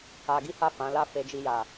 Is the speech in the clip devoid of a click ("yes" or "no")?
yes